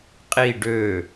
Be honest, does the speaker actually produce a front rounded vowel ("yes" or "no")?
yes